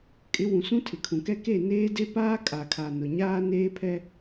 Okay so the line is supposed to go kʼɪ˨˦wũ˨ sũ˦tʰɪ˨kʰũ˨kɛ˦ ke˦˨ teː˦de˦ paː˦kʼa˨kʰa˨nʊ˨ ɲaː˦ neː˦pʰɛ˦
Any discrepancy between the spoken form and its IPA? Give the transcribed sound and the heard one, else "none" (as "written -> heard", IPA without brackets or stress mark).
t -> n